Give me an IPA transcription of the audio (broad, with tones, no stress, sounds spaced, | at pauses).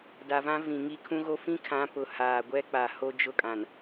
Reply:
d a˨ v ã˦ v ĩ˨ ŋ i˦ kʰ ũ˦ ɣ o˦ f ĩ˦ kʰ ã˨˦ p ʊ˨ h aː˨ ɡʷ ɛ˦ k͡p a˨ h o˦ d͡ʒ ʊ˦ kʼ ã˨ n